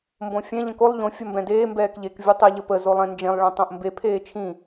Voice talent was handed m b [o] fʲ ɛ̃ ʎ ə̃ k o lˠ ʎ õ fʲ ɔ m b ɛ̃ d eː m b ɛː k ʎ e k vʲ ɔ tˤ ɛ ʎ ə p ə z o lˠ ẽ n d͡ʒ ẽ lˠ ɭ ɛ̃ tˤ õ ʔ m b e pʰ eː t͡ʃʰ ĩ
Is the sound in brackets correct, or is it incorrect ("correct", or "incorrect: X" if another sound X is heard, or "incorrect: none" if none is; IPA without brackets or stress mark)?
incorrect: õ